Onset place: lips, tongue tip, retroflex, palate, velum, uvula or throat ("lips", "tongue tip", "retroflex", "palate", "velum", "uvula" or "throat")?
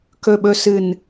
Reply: velum